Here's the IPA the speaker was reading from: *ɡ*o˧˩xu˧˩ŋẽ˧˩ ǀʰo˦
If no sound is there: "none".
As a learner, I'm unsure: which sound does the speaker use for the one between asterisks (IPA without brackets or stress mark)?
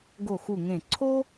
ɡ